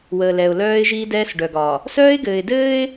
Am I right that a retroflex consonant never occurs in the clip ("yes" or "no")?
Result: no